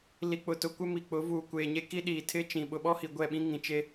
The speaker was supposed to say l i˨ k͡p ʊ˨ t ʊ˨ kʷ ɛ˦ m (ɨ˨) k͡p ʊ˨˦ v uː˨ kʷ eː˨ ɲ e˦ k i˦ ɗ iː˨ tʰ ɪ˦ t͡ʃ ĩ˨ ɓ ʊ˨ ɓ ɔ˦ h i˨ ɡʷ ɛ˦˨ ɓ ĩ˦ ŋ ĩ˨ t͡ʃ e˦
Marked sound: incorrect: i˨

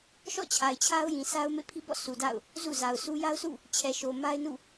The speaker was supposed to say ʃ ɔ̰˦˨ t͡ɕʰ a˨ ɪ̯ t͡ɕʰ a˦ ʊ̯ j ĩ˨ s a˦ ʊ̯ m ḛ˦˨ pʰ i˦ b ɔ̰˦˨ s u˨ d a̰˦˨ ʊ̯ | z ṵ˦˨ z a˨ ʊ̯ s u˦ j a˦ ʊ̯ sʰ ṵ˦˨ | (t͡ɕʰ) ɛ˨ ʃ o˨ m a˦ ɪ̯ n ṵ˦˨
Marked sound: correct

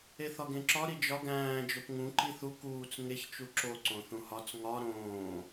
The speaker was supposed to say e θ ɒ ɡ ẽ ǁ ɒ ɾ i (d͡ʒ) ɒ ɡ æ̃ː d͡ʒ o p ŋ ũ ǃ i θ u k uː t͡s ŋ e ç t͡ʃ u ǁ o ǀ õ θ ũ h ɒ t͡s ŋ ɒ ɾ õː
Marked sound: correct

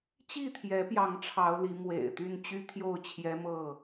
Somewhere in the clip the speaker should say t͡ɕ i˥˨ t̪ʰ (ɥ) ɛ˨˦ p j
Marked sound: incorrect: j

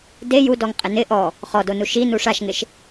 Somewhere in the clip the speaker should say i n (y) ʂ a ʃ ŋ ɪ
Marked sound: incorrect: u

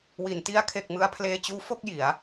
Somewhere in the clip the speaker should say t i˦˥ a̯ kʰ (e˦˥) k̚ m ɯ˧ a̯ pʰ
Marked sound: incorrect: e˨˩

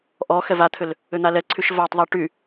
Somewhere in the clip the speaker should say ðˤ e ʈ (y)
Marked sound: correct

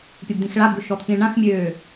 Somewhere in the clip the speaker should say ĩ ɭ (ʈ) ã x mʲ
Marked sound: incorrect: ɳ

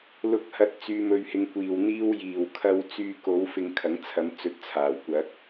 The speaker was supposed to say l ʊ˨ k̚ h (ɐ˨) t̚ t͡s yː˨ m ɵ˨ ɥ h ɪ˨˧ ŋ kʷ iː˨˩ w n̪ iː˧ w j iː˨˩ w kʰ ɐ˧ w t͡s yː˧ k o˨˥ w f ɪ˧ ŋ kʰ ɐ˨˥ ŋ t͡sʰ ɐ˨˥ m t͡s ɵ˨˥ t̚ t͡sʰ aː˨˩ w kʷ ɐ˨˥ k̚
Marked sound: correct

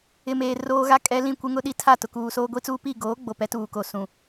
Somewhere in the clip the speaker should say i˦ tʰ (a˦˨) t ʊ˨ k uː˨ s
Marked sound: correct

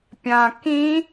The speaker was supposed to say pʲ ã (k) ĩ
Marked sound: correct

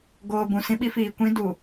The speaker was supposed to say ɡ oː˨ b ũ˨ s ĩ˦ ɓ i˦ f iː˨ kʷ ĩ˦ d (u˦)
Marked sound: incorrect: u˨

